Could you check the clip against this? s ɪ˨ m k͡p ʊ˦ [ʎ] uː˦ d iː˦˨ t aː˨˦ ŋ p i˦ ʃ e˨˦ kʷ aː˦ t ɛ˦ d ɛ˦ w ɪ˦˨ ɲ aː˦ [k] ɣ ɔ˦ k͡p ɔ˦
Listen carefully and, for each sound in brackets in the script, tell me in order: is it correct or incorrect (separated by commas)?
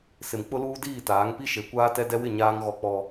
incorrect, incorrect